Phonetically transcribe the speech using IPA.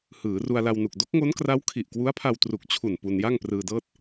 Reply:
h ɯː˩˦ r u˧ a̯ l a˧ w n u˨˩ k̚ d o˦˥ k̚ ŋ o˦˥ n k r a˦˥ w kʰ i˨˩ ʔ k w u˦˥ a̯ pʰ a˧ w t r u˨˩ k̚ t͡ɕʰ u˨˩ n p u˧ n j a˥˩ ŋ p r ɯː˧ d ɤː˥˩ t̚

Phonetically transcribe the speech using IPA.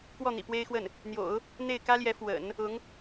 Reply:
k w ɔ˥˩ n̪ ḭ˨˩ p w e˥ ɪ̯ x w ə˥˩ n | n̪ j o̰˨˩˦ ʊ̯ | n̪ e˥˩ ɪ̯ k ä˥ l j ɛ˧˥ f w ə̰˨˩˦ n | ʊ˧˥ ŋ

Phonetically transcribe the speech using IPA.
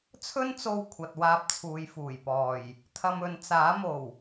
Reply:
t͡sʰ ɵ˥ n t͡s o˧ w kʷʰ ɐ˨ t̚ w aː˧ p̚ t͡sʰ uː˨ j f uː˨˩ j p ɔː˨˩ j | t̪ʰ ɐ˧ m ɵ˨ n t͡s aː˨˥ m o˨˩ w

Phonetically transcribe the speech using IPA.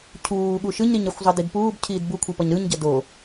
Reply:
cʰ uː ɠ u ʃ ɯ ɲ ɾ i ɲ a xʷ zˤ ʌ d i d p uː b cʰ iː d b u kʷʰ i p ʌ ɲ ɾ ɯ ɲ ɟ ʌ d o

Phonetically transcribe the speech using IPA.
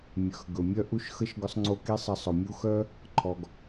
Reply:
mʲ œ˨ x ɡ ɵ˨ mʲ œ˦ ʔ u˦ ʃ x ə˦ ʃ ɡ ʊ˦ sˤ ŋ͡ǀ o˦ k i˦ sˤ ə˧ sˤ ʊ˨ mʲ u˦ x œ˦ | ǃʰ ɔ˧ ɡ

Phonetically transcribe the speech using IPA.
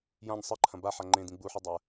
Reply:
j ã ɲ sˤ ɨ ǃʰ ɐ̃ b a ħ a ŋ͡ǃ ẽ d ĩ ɡ͡b u ħ ʉ dˤ a ə̯

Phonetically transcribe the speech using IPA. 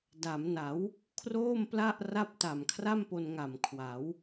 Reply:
d a˩˦ m n a˩˦ w | kʰ r oː˥˩ m p l a˥˩ ʔ r a˥˩ p̚ t a˨˩ m kʰ r a˥˩ m p o˧ n ŋ a˨˩ m kʰ w a˩˦ w

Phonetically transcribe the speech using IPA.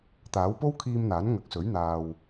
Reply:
t̪ aː˨˥ w p o˥ w kʰ iː˧ m n̪ aː˨˥ n ŋ ɐ˨ k̚ s ɵ˨˥ ɥ n̪ aː˧ w

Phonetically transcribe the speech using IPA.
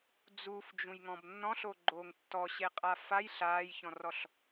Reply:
d͡z u f d͡ʒ ũ j ŋ ɔ̃ b nː ɔ̃ ɬ o ɡ͡ǃ oː ŋ tː ɔ ɕ e qʼ a f a j ɬ aː j ç ɔ̃ r ɔ ɬ

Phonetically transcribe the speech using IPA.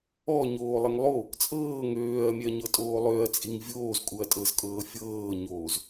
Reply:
ɔ ɲ oː lˠ ɛ ŋ lˠ o | t͡sʼ ɤː ŋ øː ɐ̯ mʲ ɛ ɐ̯ ɲ ɤ tʼ oː lˠ ø ɐ̯ t͡sʼ i ŋ vʲ oː z kʼ u ɐ̯ tʼ ɤ z kʼ ɤː fʲ ɤː ɲ oː z

